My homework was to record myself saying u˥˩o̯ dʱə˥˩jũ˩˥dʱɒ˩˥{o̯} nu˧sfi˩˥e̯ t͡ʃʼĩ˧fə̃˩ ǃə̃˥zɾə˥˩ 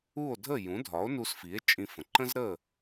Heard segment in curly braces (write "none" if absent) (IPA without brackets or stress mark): o̯